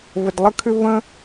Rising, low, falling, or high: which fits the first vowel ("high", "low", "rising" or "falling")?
low